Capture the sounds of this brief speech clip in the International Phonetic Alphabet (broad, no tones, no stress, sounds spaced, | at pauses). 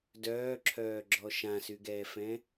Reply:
d œː ǁʰ œː ɡ͡ǁ ɔ ʃ ã s y ɡ ɛː f ɛ̃